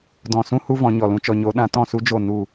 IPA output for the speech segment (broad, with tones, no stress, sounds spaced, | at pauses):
d ɔ̃˨ s ũ˦ h u˦ v ɔ̃˨˦ ɲ ɔ˨ l ũ˧ t͡ʃ ɔ˨ ɲ o˨˦ ɗ ã˨˦ t ɔ̃˦˨ s u˦ d͡ʒ o˦˨ n u˦˨